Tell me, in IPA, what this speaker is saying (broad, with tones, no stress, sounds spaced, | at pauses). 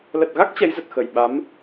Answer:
l ə˨˩ t̚ ɣ a˦˥ k̚ t͡ɕ ɛ˨˦ j z ə˨˩ t̚ x ə˧˩ j ɓ a˨˦ m